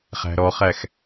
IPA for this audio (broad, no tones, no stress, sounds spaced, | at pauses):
χ æ̤ ɾ ɔ χ æ x